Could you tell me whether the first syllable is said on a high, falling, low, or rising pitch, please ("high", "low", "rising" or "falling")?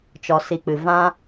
low